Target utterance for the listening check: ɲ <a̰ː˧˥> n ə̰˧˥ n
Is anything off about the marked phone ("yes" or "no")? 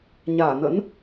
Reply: yes